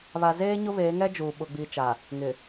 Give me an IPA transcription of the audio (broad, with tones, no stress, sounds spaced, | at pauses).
β a˨ z eː˦ ɲ ʊ˦ β eː˨˦ ŋ ɛ˦ d͡ʒ uː˨ ɓ ʊ˨ ɡ͡b iː˨ t͡ʃ a˨ | ŋ ɪ˨